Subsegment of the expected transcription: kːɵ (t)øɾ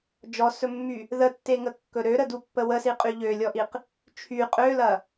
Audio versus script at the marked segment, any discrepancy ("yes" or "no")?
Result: yes